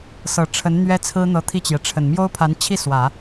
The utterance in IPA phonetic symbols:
s ɤ˨˩ ʈ͡ʂʰ ə˧˥ n n̪ ɥ ɛ˥ t͡sʰ ɹ̩˥ n̪ ɤ˧˥ t̪ʰ i˥˩ t͡ɕ j ɛ˩ ʈ͡ʂʰ ə˨˩ n m j o˥ ʊ̯ pʰ a˧˥ n t͡ɕʰ i˥˩ s w ä˨˩˦

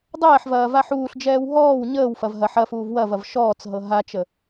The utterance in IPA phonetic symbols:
dˤ ɛː ħ v ɐː v a ħ uː ɬ d͡ʒ ɛː w ɦ ɔː w ɲ əː w f ɐ v ɦ ɐ ħ ɐ f uː v w ɐ v ɐ v ʃ ɔː t͡s ɦ ɤ ɦ a t͡ʃ ə

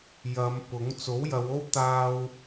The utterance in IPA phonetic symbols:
j ɐ˨˧ m p ʊ˨˥ ŋ t͡s o˨˥ w j ɐ˨˧ w o˥ w t̪ aː˥ w

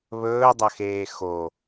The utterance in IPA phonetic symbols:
β ɵː dˤ ɐ x eː x o

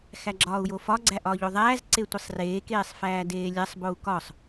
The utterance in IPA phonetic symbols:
x æ ɡ͡ǁ ɒː u̯ j o f ɒ ɡ͡ǀ æ ʔ ɒː ʎ o ðˤ æː z ǀ e tʷ i sˤ r eː k eː sˤ f æː d eː lʲ æ sˤ b o u̯ k ɒ sˤ

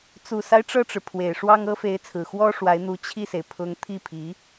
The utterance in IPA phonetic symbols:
t͡s u˨˩ s a˦ ɪ̯ ʈ͡ʂ ɤ˥˩ ʈ͡ʂ ɻ̩˩ pʰ w e˨˩ ɪ̯ ʂ w ɑ˥ ŋ ɤ˥ f e˧˥ ɪ̯ t͡sʰ ɹ̩˨˩ x w ɔ˥ ʂ w a˧˥ ɪ̯ n̪ u˧˥ t͡ɕʰ i˥˩ s e˩ ɪ̯ pʰ ʊ˧˥ ŋ t̪ʰ i˥˩ pʰ i˧˥

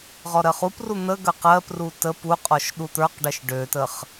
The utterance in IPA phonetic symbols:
ʁ ɔ ɾ ɜ χ u p r u n̪ ə ɡ ə q ɜ p r u t ə p u qʼ ɔ ʃ ɗ u t̪ ə˞ q ɖ ɜ ʃ ɖ ø t ə χ

